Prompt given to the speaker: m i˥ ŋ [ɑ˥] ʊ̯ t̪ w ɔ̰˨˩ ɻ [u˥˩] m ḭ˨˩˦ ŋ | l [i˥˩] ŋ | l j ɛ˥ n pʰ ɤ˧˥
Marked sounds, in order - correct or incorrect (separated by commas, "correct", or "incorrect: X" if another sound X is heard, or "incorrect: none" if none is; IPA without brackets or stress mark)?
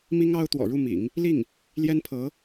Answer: correct, correct, correct